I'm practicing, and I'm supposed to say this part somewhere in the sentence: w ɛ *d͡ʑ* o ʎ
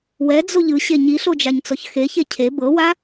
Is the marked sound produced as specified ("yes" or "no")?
no